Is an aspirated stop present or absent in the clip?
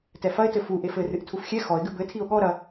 present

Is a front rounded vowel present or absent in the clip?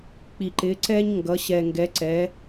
absent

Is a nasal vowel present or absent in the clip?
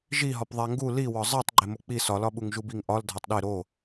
absent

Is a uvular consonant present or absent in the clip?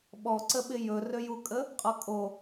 present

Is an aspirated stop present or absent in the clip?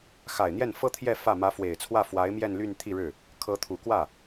present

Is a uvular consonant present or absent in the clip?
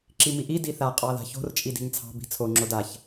present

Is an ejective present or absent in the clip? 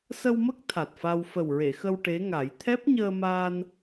absent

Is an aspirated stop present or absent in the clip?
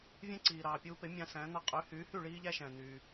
absent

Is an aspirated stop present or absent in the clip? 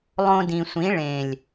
absent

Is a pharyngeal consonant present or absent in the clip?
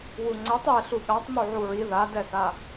present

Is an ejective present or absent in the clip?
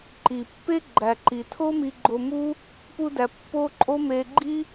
present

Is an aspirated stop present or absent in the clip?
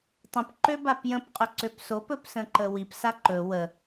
absent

